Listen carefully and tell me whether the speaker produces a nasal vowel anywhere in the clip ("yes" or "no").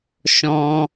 yes